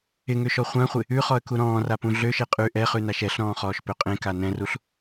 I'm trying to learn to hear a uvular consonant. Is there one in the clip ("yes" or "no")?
yes